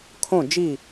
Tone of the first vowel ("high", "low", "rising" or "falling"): falling